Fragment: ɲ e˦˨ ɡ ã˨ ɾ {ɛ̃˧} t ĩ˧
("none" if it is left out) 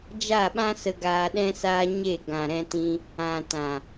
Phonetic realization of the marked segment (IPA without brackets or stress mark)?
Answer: ɛ̃˧